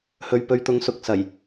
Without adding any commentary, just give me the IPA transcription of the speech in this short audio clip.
h ɵ˨ ɥ p ɵ˨˧ ɥ t̪ ʊ˨˧ ŋ s ʊ˨˥ k̚ s ɐ˨˩ j

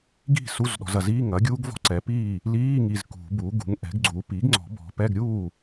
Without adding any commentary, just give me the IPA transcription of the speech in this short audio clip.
ɡ i̤˥˩ s u˧˥˧ z ɗ ɔ̤˨ z ɐ˨ z iː˧˥˧ ŋ ɐ˩˥ ɡʲ uː˦˥ ɡ v ɔ̤˧˥˧ ǀ ɛ˩˥ p iː˥˩ | l iː˧˥˧ ŋ i˨ z k ṳ˨˩˦ b u˩˥ ɡ ṳ˩˥ ŋ ʔ ɛ̤˩˥ ɡ ɡ͡ǀ u˩˥ p i˩˥ ɡ ŋ͡ǀ ɔ̤˨˩˦ b ɔ̤˨ p ɛ˧˥˧ ɡ ɾʲ uː˥˩

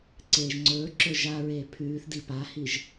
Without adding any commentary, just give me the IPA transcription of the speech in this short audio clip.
ǀ eː ʒ ŋ͡ǀ ɵː ǁ ɵ ʒ a ɹ eː pʰ ʉː θ d i p a h i ʒ

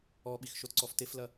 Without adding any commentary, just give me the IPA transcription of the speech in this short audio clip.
ɔ ɓ i x ʃ o t ǀ ɔ f t e f l ɐ

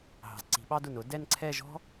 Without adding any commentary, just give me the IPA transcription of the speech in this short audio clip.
ɦ ɑ̤˩˧ z ǀ i̤˩˧ ɓ ɑ˧ d ʊ˧˩ n ʊ˩˧ d ɛ˥˧ n ǀʰ ɛ˥˧ ʒ ɔ̤˥

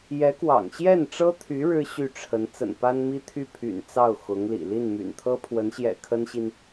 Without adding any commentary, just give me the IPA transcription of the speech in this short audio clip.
j ɛ˧˥ k w ɑ̰˨˩ ŋ ɕ j ɛ˥˩ n ʈ͡ʂ ɤ˥ t̪ʰ y˧˥ ɻ ɻ̩˥ ɕ y˥˩ ʈ͡ʂʰ ə˧˥ n t͡s ə̰˨˩ n p a˥ n m i˥ t̪ʰ y˥˩ pʰ y̰˨˩ n t͡s ɑ˥˩ ʊ̯ x ʊ˧˥ ŋ l ḭ˨˩ l i˥˩ n m y̰˨˩ n t̪ʰ ɤ˥ pʰ w ə˧˥ n ɕ j ɛ̰˨˩ kʰ ə˥ n ɕ i˨ n

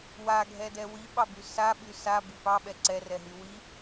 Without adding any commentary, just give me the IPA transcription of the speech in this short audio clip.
w a ɡʱ ɛ d ɛ w i ɓ ɑ b y s a ɓ y s a b i p ɑ ɓ ɛ ǀ ɛ r ɛ ɦ y w i

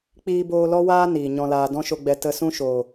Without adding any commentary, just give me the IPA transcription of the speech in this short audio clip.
k͡p iː˧ b oː˧ l ɔ˦ w aː˦ n iː˨ ɲ ɔ̃˧ l aː˧ d ɔ̃˦ ʃ o˧ ɡ͡b ɛ˧ t ə˧ s ũ˦ ʃ o˨

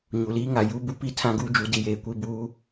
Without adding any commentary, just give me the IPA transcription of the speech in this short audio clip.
ɲ u˨ l iː˦ ŋ a˨ j u˦ b u˦ p i˦ tʰ ã˦ ɡ uː˦ d͡ʒ u˨˦ d i˨ j eː˨ kʷ i˦˨ b uː˦

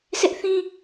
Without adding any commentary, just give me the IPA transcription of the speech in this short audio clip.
sʰ ɪ˦ ʔ θ ĩ˦

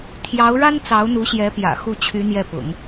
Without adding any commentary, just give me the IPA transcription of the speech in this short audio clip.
t̪ʰ j ɑ˧˥ ʊ̯ ɻ a˥ n t͡s ɑ˧˥ ʊ̯ n̪ u˧˥ ɕ j ɛ˧˥ p j ä̰˨˩ x u˥˩ t͡ɕʰ y˧˥ n̪ j ɛ˥˩ p ʊ̰˨˩˦ ŋ

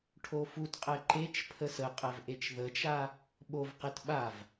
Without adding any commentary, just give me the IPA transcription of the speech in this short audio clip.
ʈʰ o f u t qʼ ɛ ǃ e t͡ʃ pʰ ə s ə qʼ ɛ v ʔ e t͡ʃ ð ə t͡ʃ a | ɓ o v q e t ɓ a v

